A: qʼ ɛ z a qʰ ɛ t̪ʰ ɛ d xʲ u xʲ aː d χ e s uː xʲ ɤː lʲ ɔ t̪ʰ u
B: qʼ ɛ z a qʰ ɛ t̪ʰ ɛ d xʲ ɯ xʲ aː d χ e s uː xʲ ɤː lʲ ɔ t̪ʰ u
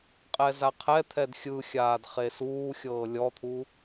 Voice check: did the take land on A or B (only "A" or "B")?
B